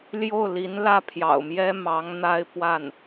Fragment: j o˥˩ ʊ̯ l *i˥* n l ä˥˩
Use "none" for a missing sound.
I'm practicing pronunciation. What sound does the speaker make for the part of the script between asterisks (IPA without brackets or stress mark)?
i˧˥